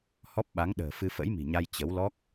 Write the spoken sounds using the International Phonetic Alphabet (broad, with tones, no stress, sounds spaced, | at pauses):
h ɔ˦˥ p̚ ɓ a˨˦ ŋ ɗ ə̤ː˨˩ f ɨ˧ f ə̰˧˥ j m i̤˨˩ ɲ a˧ j t͡ɕ ə˨˦ w l ɔ˦˥ k̚